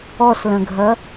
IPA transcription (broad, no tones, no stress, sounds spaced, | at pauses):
ɔ s l ɐ̃ ɡʱ ɐ